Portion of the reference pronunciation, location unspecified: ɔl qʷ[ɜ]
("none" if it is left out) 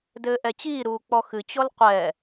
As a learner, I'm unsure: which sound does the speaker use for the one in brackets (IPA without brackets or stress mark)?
ɛ